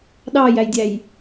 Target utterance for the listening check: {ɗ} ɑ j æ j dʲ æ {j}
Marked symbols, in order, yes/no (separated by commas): yes, yes